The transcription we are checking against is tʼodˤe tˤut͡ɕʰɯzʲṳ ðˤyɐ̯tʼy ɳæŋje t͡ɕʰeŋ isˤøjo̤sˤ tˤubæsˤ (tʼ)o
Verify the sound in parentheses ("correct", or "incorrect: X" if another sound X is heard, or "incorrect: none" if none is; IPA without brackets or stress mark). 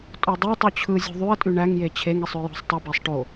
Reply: incorrect: ʈ